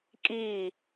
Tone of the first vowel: falling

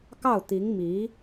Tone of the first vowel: falling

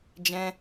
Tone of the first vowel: high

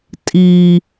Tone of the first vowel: low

